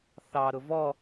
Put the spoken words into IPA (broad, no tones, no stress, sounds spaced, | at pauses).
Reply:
θ ɑ ɾ ʊ v ɔ